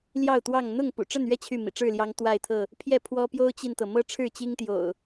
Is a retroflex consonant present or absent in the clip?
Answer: present